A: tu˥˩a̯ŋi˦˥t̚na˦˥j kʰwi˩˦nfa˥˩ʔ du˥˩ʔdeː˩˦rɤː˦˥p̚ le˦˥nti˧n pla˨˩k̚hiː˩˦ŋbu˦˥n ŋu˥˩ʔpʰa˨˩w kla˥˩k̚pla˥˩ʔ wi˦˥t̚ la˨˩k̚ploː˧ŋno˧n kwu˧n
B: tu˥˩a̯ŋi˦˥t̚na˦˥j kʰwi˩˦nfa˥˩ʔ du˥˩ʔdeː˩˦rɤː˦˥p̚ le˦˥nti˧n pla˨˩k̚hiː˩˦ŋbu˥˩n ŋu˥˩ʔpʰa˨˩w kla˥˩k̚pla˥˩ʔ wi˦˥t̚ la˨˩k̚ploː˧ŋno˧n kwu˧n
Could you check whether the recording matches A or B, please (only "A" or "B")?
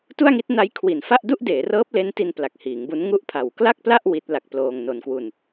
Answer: A